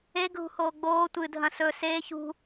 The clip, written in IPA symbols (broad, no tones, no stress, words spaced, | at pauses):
eɡʱṳhoː ɡ͡boː tʷɨdʱɐ̃ sɵ seːç ṳ